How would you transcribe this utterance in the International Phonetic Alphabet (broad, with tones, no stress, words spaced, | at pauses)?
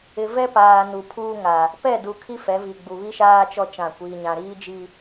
ɪ˨vɛ˦paː˨ nu˨ pʰuː˦ŋa˨ | pɛ˦˨du˨ kʰi˦fɛ˨˦vi˨ɡ͡bu˨ βi˦ʃaː˦t͡ʃɔ˦ t͡ʃã˦˨kʷiː˦ɲã˦ ɾiː˦d͡ʒi˦